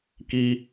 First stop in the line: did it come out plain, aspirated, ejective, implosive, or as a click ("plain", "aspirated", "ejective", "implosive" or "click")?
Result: plain